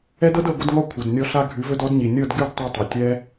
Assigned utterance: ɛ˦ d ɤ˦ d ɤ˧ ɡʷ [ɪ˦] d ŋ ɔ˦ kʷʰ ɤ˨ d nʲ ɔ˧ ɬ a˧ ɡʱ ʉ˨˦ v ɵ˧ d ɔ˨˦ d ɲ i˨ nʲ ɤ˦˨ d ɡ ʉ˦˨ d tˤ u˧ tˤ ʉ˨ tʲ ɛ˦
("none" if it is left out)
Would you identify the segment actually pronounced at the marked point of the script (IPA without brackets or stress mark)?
ɪ˦